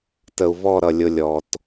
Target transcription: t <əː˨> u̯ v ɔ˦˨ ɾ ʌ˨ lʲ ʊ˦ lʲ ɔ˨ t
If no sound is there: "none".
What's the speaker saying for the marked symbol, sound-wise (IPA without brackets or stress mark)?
ə˨